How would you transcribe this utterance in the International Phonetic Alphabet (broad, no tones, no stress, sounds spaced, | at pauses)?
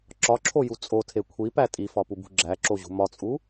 ǁ ɒ ǁʰ o j u t͡sʼ o tʰ e kʷʰ i p æ tʼ i f ɒ p u b ṳ ɡ͡ǁ æ ǁ o ʑ ṳ m ɒ t͡sʼ u